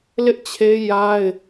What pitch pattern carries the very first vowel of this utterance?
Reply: high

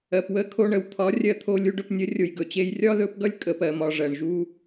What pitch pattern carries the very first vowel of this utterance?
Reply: low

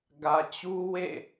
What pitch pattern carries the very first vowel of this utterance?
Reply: low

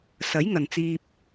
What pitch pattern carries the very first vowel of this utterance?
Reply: rising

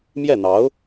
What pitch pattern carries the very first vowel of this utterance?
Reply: falling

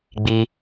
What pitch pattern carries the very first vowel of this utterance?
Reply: high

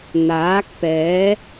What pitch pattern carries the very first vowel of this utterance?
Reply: rising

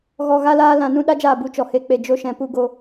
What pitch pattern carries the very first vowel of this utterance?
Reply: low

